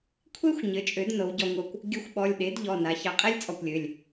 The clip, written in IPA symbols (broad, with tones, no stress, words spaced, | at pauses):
kʷʰe˥xʷ ɲɘ˩˥t͡ʃʼø˩˥dnɤ˩˧w ɟɔ˧ŋʷɤ˧kʷ | ɡʲɘ˧xʷɓɔ˩˧˩lʲɗe˩˥d ʎɔ˩˧˩na˩˧ çɑ˧qʼɛ˥lʲt͡sʼɔ˧kʷlʲø˩˧˩lʲ